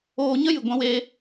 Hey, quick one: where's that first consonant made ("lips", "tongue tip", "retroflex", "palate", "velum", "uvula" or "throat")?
palate